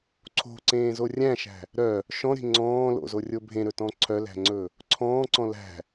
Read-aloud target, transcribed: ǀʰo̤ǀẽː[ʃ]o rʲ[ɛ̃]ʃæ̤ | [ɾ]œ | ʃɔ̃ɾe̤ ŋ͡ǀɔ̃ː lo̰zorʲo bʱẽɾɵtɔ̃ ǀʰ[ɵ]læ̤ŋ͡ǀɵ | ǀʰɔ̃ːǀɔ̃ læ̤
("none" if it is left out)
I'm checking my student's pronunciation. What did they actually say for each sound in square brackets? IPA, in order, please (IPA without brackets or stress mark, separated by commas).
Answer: z, æ̃, ɾ, œ